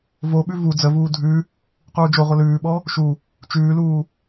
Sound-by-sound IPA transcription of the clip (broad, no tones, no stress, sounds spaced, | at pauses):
v o ɓ ʉ v u d͡z ə v uː dʱ ʉ | q uː d͡ʒ o ʁʷ ə l ʉː ɓ ɔ | ʃ u | t͡ʃ ʉː l uː